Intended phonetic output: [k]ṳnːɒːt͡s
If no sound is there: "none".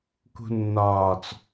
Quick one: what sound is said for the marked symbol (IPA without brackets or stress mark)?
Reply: k